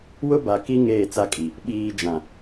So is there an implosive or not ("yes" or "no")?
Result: yes